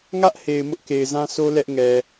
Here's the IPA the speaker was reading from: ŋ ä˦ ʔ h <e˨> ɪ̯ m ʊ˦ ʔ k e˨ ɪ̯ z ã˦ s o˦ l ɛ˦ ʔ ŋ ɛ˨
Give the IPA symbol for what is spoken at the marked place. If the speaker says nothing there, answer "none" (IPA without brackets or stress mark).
e˨